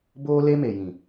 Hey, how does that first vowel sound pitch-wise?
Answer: high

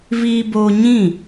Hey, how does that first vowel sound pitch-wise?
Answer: high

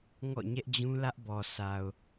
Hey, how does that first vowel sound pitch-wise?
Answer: falling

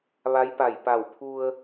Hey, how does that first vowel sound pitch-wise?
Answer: rising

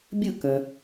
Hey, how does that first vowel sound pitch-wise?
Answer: falling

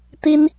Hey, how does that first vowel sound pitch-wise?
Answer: high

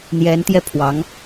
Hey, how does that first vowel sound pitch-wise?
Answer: rising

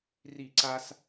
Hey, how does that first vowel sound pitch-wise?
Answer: falling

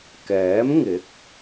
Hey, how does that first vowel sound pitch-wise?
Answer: rising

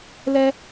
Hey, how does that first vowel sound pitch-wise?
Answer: high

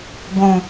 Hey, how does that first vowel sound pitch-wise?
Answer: low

